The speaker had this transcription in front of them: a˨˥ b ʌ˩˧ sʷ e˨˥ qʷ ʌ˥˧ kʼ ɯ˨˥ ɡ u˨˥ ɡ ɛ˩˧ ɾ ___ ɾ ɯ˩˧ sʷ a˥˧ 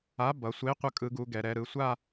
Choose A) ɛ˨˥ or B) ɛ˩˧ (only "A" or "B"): B